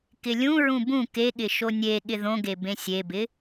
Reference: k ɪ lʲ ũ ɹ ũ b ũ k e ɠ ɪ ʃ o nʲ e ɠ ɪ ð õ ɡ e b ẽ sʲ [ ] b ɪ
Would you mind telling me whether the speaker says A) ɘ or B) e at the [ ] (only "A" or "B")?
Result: B